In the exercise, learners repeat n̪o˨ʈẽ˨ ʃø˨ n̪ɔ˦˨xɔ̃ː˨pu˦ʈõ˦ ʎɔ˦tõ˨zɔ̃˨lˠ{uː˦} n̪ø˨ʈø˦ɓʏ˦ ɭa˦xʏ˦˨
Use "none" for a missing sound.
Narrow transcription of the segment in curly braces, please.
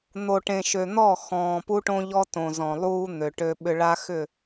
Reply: uː˦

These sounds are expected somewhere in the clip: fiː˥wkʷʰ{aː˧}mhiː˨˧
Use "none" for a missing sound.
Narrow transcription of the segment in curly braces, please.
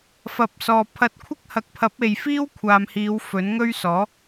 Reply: aː˨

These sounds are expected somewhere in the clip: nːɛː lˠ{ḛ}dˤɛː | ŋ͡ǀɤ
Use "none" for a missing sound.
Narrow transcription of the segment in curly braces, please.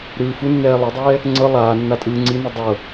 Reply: e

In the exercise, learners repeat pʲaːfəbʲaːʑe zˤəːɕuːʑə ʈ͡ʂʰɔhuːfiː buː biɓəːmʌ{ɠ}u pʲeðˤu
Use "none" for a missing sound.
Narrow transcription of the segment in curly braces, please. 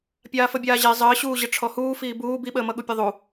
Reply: ɠ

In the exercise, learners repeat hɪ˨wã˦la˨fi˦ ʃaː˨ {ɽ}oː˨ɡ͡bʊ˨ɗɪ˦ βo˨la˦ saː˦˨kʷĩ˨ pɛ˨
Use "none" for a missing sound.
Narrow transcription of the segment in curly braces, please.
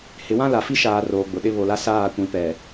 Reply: r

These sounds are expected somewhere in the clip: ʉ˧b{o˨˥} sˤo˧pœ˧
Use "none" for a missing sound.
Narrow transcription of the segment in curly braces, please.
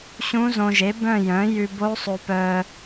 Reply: o˦˥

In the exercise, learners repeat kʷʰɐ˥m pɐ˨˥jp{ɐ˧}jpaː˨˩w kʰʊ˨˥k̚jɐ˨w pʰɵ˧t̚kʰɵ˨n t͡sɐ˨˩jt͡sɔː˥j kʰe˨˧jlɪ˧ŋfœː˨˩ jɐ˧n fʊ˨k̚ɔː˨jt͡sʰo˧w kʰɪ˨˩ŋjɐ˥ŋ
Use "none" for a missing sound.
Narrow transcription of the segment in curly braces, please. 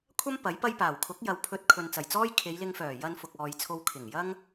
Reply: ɐ˥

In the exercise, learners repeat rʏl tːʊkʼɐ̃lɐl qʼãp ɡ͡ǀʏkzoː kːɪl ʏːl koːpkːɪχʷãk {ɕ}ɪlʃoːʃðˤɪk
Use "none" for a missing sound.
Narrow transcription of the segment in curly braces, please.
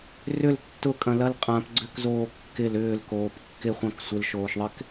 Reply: sʷ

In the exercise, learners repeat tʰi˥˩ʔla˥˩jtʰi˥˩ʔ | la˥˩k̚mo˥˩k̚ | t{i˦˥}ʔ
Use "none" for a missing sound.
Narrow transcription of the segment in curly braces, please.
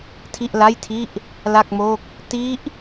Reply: i˦˥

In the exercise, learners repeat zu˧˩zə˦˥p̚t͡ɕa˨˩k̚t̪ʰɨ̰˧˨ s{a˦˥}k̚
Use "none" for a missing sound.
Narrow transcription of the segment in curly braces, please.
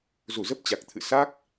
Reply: a˦˥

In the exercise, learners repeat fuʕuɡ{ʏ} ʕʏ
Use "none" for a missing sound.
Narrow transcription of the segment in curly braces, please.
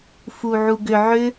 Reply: ʏ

